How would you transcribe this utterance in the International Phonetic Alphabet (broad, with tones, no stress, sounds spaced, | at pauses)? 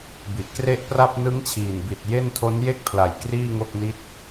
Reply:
b i˨˩ ʔ k r e˥˩ ʔ p r a˥˩ p̚ n ɯ˦˥ ŋ t͡ɕʰ iː˨˩ n b i˨˩ t̚ j e˥˩ n tʰ o˦˥ n j e˥˩ k̚ pʰ l a˨˩ j k r iː˥˩ ŋ o˥˩ k̚ n i˥˩ t̚